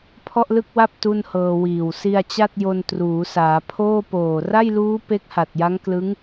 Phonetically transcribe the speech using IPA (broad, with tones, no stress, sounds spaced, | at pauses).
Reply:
pʰ ɔ˥˩ ʔ l ɯ˥˩ k̚ w a˥˩ p̚ t u˥˩ n h ɤː˧ w iː˨˩ w s i˧ a̯ t͡ɕ a˥˩ t̚ j o˧ n t r uː˩˦ s aː˩˦ pʰ oː˥˩ p oː˨˩ r a˥˩ j l uː˦˥ p e˦˥ k̚ h a˨˩ t̚ j a˦˥ ŋ k l ɯ˦˥ ŋ